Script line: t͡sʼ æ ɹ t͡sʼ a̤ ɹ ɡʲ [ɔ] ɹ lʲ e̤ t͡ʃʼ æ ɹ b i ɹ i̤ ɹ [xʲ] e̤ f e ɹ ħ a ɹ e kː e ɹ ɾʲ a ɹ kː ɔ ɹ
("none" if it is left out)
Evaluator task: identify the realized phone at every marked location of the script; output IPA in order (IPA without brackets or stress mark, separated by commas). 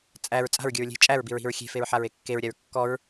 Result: ə, xʲ